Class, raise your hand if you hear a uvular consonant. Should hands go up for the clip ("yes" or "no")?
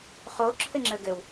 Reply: yes